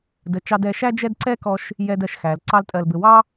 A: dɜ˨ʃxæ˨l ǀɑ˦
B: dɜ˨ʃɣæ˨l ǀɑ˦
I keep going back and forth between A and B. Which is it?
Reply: A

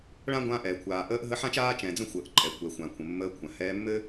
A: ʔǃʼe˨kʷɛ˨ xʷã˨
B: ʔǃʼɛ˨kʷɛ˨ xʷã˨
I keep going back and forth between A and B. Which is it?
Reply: B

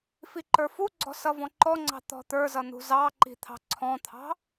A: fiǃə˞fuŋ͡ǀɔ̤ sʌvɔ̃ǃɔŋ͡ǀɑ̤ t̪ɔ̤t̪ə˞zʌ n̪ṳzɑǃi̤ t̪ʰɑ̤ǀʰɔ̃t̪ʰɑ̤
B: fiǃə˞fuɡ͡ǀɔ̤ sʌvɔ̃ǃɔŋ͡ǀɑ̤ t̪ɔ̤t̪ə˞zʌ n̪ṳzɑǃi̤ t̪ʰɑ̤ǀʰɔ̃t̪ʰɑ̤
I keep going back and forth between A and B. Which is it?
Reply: B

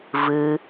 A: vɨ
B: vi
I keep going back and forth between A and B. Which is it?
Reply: A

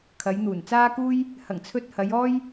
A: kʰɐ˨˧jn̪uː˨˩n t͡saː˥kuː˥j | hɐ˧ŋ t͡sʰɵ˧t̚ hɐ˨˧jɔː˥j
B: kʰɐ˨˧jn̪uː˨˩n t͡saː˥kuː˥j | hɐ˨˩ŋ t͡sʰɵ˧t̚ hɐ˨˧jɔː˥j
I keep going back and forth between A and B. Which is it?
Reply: B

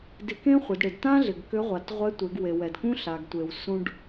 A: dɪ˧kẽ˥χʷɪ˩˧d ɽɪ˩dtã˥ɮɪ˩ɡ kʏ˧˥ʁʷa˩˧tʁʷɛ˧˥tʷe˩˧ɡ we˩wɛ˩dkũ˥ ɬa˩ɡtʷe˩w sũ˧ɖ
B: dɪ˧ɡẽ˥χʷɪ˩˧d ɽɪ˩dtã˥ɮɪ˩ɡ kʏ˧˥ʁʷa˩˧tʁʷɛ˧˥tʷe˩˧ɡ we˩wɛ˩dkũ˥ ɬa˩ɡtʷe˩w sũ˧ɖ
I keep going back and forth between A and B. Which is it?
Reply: A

